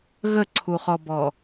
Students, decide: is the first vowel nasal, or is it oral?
oral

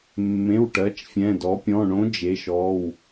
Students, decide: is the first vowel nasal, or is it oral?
nasal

